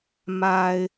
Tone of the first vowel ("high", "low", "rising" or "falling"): low